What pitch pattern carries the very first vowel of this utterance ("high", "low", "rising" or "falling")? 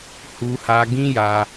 high